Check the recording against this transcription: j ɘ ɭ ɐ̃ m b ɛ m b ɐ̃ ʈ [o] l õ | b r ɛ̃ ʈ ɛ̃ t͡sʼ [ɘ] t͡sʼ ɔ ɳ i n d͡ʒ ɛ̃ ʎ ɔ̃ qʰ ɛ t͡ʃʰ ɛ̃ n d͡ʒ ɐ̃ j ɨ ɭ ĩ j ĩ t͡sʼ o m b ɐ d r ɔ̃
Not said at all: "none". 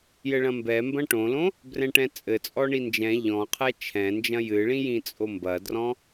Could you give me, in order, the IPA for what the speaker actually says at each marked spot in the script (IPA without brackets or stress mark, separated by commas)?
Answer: õ, ɘ